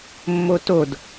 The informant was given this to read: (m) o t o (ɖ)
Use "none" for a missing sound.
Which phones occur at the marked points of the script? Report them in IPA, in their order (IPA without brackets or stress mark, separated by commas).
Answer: mː, d